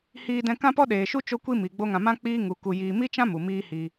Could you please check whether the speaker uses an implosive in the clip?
yes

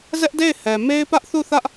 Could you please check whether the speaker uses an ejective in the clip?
no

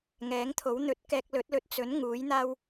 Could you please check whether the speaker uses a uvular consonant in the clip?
no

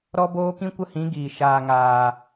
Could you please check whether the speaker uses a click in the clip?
no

